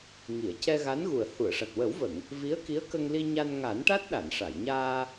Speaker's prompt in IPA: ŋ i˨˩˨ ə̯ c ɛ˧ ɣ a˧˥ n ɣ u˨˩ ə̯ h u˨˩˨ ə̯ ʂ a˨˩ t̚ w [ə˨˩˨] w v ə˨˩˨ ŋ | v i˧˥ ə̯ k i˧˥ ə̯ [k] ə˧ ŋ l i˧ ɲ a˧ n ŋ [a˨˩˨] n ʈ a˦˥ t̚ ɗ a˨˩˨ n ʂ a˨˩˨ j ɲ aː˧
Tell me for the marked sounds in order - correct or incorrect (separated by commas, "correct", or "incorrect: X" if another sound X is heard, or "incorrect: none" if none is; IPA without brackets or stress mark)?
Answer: incorrect: ə˨˩˦, correct, incorrect: a˨˩˦